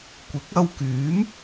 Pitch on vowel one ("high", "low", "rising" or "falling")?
rising